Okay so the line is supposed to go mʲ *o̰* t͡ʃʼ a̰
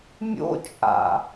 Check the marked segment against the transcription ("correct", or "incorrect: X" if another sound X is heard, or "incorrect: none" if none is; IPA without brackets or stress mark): correct